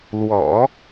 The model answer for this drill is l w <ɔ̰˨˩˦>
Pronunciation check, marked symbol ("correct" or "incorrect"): correct